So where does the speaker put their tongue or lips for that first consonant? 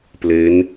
lips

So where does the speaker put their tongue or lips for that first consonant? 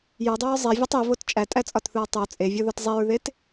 palate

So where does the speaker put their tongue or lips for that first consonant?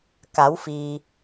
velum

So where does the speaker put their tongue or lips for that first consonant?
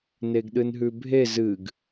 tongue tip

